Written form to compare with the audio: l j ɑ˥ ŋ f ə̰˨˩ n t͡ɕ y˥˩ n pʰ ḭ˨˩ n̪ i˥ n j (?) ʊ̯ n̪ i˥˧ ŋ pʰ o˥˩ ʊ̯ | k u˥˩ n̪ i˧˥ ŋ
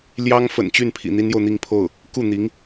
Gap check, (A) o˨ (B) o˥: A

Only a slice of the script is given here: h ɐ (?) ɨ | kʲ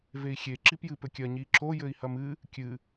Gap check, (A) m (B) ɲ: A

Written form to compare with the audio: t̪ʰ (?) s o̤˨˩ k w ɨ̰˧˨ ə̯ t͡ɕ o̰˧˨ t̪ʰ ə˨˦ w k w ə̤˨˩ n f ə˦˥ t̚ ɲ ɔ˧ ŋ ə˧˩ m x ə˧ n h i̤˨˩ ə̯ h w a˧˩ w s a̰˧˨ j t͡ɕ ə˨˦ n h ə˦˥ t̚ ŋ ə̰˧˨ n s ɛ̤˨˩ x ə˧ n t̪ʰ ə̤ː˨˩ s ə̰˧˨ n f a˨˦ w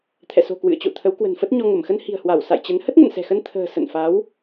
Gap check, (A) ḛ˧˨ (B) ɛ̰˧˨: B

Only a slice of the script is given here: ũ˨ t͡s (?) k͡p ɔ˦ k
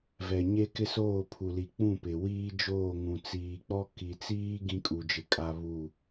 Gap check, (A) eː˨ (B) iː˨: B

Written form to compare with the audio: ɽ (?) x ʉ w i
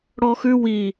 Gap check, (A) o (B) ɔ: B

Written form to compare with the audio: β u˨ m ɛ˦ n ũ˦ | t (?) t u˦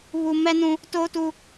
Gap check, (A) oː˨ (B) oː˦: B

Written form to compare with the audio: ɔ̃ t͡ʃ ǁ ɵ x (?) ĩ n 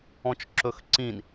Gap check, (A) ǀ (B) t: A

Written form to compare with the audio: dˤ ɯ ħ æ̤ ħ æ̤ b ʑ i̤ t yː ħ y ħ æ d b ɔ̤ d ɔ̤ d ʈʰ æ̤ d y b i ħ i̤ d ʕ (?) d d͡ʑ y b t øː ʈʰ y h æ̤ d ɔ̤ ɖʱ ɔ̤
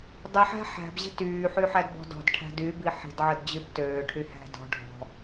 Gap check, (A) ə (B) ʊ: A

